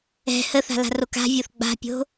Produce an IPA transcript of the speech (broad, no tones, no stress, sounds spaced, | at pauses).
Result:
ɛ̤ h ə θ a̤ l a̤ r o k a̤ vʲ o θ ɡ͡b a̤ pʲ o̤